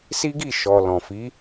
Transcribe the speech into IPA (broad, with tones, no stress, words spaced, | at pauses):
si˦ɡi˦˨ ʃɔ˨lɔ̃˨ fi˨˦